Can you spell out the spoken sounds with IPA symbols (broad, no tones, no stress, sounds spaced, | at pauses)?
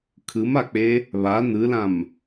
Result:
kʰ ɯ m a k͡p e | β a n ɯ l ã m